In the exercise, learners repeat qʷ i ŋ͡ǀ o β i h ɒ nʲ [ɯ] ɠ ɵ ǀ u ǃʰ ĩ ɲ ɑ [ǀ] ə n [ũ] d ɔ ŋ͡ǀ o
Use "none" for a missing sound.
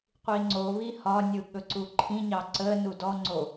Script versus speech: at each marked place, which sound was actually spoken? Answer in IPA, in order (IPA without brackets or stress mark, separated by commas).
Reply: ɯ, ǀ, u